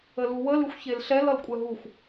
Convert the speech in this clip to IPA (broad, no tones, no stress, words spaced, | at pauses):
əluwə lɨxʷçelɬɛl ʌlkʷʼɛɦuxʷ